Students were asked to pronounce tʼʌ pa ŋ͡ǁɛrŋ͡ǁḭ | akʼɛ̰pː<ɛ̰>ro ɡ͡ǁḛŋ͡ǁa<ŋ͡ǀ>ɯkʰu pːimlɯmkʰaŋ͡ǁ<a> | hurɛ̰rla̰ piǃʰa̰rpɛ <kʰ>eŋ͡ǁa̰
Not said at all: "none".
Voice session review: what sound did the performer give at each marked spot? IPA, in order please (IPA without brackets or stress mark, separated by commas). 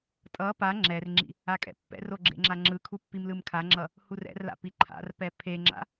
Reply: ɛ̰, ŋ͡ǁ, ʌ, pʰ